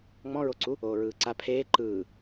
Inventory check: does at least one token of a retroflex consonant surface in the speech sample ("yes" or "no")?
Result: no